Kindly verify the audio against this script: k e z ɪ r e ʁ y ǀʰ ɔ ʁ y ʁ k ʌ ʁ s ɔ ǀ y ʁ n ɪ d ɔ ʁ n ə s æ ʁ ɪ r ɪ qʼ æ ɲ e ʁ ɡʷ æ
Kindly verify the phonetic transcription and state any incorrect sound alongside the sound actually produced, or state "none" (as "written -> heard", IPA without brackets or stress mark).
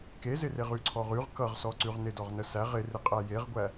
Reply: ɲ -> j